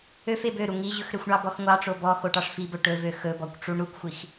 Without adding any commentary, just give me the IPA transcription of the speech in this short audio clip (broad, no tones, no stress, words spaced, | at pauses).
øf ebøɾu ŋiʑɵxɾøxʷɳɑ bɔxŋʷɑʈ͡ʂo bɔ xoʈɑʂfibɵ ʈɵvø xɵbɔkʷ ʈ͡ʂuɳɾukʷxʷix